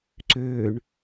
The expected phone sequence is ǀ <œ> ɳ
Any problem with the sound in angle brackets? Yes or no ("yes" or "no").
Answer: yes